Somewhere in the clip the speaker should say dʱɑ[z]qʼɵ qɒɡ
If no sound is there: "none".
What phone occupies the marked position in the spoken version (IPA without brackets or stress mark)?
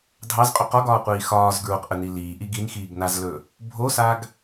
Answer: z